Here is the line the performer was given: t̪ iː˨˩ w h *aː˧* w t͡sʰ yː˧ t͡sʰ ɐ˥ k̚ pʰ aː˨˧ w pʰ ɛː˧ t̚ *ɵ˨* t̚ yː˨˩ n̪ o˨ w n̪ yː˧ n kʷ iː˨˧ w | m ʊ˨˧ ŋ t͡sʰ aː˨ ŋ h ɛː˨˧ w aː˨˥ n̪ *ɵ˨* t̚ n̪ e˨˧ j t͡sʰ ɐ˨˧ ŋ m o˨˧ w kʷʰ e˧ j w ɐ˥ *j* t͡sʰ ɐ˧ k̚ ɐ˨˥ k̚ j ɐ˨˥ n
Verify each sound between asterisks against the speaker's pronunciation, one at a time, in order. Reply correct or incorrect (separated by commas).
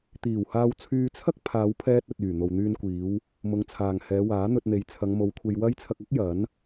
correct, correct, incorrect, correct